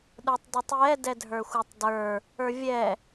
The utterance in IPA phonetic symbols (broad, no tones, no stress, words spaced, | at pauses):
ɗə˞tˤdotˤjɛ dɛdʱə˞xʷə˞tˤdə˞ | ə˞vʲɛ